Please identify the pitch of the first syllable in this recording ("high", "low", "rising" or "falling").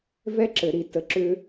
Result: high